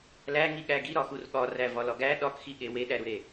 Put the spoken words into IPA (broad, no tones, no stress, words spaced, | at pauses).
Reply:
læŋi ɠæɡi ɾɒxurɠɒræ vɒlɒɡæ ɗɒkxiɠe weɗæɾuɾe